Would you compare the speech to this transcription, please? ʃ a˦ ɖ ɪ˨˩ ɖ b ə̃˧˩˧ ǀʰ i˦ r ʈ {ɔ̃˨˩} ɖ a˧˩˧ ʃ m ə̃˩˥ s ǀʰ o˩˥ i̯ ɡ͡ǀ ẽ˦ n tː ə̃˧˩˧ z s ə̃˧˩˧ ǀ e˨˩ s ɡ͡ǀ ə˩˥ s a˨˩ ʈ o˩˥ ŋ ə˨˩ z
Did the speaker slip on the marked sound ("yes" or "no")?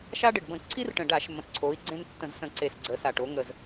yes